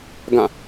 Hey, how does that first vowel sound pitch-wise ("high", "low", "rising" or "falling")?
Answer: falling